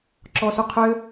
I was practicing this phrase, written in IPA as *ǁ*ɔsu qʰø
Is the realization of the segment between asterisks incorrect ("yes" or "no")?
no